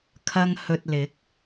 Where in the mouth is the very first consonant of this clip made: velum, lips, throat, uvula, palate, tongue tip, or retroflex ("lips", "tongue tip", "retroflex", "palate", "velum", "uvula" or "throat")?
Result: velum